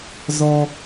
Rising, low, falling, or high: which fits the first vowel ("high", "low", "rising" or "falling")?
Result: high